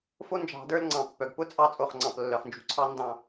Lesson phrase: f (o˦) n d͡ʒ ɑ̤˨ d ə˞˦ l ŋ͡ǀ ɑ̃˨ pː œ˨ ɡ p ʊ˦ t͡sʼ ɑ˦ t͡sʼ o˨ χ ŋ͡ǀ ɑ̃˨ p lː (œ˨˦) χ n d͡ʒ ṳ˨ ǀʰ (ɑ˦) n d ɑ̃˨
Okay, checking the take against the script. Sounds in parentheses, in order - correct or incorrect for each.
correct, incorrect: œ˨, correct

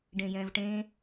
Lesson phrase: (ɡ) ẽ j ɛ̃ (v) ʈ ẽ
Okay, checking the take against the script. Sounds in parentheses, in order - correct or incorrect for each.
incorrect: ɖ, correct

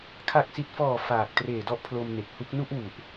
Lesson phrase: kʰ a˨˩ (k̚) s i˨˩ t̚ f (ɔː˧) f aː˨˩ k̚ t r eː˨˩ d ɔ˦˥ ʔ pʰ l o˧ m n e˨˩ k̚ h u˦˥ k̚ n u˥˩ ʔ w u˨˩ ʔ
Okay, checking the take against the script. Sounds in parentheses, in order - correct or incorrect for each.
correct, incorrect: ɔː˨˩

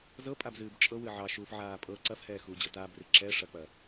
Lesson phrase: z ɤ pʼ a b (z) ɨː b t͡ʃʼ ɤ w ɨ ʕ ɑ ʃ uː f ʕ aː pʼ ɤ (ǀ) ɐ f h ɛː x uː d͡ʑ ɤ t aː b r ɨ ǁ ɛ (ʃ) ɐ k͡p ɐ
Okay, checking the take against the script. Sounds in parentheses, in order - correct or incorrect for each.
correct, correct, incorrect: ʂ

